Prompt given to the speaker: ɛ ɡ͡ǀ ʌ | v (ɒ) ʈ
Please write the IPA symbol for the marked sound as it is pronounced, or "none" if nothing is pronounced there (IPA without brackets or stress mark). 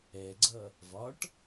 ɒ